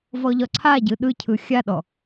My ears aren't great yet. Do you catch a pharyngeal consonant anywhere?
no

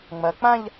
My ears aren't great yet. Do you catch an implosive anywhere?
no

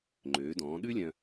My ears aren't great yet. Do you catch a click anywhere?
yes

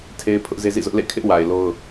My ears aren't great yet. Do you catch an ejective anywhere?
no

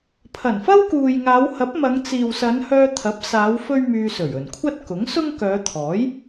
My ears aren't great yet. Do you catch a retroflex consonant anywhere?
no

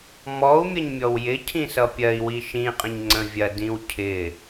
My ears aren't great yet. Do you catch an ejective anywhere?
yes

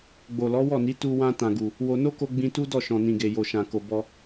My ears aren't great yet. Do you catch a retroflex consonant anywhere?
no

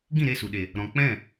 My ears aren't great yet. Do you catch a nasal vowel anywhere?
yes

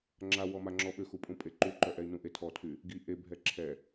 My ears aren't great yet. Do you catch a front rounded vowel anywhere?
yes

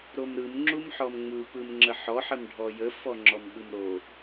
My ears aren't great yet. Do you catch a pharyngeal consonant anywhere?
yes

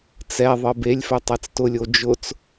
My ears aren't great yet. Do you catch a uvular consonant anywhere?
no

